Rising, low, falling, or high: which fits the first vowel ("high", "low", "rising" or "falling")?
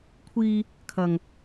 high